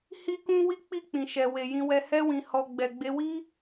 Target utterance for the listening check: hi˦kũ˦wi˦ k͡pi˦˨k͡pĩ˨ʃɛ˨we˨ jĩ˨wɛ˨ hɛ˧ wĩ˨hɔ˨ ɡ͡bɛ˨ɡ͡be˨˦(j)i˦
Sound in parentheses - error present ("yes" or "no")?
yes